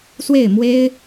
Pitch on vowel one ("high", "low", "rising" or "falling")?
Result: falling